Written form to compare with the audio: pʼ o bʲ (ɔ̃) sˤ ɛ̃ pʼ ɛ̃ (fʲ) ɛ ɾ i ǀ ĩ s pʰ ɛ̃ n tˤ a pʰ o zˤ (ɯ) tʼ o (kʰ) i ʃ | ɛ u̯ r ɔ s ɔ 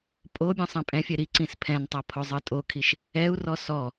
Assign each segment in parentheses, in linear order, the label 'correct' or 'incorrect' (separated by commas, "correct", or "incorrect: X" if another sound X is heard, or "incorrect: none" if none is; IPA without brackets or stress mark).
correct, correct, correct, correct